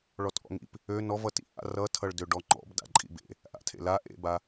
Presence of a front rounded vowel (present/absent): present